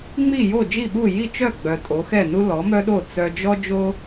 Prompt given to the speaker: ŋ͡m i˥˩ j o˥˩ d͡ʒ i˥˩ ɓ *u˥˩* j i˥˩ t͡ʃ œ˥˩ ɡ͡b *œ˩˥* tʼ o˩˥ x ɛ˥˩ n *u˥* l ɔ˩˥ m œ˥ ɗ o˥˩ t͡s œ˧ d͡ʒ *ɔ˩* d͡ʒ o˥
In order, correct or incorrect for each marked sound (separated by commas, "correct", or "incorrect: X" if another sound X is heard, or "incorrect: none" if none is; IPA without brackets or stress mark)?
correct, incorrect: œ˩, correct, incorrect: ɔ˥